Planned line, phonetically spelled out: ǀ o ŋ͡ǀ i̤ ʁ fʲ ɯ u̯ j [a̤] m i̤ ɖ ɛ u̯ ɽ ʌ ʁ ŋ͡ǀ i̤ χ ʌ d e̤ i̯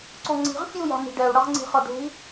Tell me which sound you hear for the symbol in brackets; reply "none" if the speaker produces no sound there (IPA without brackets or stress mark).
a̤